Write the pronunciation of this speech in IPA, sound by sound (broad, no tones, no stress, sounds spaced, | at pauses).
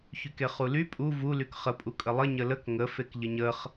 ç y k e χ u l y pʼ u v u l y k χ ə pʼ u kʼ ə lˠ ə ɲ ə l ə k ŋ ə f e k ʎ ə ɲ ə χ